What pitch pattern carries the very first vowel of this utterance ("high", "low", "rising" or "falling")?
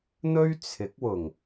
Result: high